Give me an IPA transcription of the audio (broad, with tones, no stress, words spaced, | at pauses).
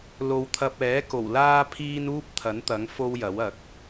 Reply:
lo˨wt̪ʰɐ˧p̚ɛː˨˥ ko˨˩wlaː˥pʰiː˥n uː˥p̚t̪ʰɐ˨˥nt̪ɐ˨˥ŋ fo˥wjɐ˨˥wɐ˨˥k̚